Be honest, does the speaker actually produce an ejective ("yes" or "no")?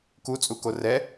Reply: yes